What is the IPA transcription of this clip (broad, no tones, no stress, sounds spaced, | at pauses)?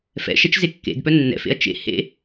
f ɛ̰ ʃ ɛ t͡ʃ z e kː ḛ d p œ nː ɛ̰ f ḛ ɐ̯ t͡ʃ ḛ h ḛ